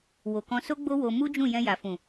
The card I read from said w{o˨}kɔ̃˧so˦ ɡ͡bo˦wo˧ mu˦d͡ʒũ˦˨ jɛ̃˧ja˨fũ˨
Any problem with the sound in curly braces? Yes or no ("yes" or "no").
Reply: no